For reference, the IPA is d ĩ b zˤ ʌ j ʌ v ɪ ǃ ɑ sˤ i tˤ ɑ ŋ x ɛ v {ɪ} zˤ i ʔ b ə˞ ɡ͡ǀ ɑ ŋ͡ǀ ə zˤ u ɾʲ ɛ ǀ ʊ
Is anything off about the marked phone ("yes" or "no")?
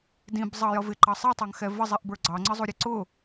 yes